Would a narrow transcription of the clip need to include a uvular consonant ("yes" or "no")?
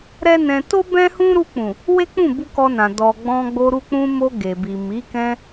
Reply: no